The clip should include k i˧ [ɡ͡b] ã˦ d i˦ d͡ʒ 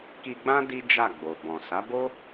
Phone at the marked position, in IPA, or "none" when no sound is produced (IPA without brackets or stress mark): ɡ͡b